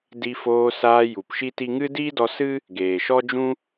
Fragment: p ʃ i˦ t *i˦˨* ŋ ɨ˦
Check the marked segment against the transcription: incorrect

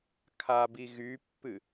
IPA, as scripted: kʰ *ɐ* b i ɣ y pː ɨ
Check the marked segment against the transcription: incorrect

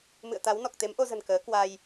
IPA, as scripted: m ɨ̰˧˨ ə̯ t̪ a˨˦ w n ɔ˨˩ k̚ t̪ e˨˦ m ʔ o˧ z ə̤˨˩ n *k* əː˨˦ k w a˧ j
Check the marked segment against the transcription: correct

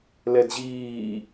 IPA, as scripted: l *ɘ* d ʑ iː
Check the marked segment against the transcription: incorrect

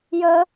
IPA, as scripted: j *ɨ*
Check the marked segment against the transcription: incorrect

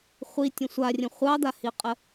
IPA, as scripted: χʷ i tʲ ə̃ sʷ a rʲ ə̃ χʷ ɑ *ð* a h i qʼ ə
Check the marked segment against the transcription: incorrect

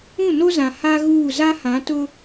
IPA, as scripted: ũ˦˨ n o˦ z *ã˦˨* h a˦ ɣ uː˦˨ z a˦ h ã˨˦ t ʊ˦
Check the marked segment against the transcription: incorrect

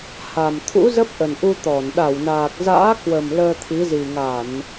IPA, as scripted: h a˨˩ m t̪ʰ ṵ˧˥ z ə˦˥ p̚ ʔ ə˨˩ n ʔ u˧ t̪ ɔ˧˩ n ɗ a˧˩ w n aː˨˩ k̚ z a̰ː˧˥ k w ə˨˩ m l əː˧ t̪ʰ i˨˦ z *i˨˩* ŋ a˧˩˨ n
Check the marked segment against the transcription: correct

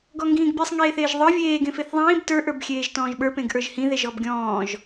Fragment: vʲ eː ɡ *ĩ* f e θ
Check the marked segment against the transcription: incorrect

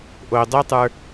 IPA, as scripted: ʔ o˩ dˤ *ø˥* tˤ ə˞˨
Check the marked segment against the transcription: correct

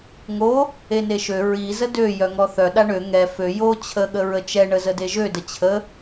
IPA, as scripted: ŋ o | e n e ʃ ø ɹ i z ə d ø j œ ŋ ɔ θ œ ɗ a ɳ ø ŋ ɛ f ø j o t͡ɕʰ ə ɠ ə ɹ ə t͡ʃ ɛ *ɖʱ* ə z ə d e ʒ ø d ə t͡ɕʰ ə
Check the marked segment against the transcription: incorrect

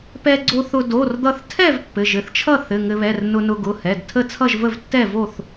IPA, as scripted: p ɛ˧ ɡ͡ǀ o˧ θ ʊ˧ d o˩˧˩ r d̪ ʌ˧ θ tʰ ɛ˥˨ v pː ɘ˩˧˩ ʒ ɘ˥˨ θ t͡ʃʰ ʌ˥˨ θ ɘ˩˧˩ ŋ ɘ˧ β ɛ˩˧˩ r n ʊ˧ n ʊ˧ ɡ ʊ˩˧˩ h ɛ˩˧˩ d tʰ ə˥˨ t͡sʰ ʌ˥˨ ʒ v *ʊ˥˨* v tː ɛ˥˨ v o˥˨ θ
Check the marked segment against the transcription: incorrect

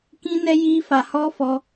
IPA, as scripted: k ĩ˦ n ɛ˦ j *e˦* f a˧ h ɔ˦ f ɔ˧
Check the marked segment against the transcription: incorrect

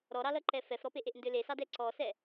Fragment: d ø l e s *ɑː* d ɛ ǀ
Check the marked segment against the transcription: incorrect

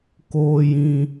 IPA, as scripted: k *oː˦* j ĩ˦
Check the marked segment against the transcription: correct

